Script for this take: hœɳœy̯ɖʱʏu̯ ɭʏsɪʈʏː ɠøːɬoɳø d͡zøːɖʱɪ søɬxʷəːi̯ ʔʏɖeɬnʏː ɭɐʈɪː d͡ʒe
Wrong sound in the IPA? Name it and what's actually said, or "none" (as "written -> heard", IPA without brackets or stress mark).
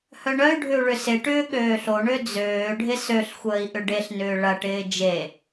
none